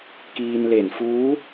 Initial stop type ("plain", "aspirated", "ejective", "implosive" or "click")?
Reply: plain